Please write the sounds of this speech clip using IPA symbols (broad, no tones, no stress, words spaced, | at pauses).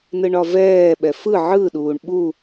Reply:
nɯɳɒvɛːɓɛ fɯ ʕɯɗuːɳ ɓu